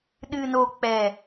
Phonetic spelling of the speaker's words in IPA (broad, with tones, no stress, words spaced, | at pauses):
ɗɨ˨no˨ k͡pɛ˨